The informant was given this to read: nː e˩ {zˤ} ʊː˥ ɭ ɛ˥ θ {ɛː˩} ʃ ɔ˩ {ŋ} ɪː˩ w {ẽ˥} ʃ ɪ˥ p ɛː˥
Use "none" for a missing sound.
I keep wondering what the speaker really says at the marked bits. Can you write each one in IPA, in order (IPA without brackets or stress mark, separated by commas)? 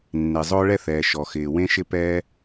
zˤ, ɛː˩, x, ẽ˥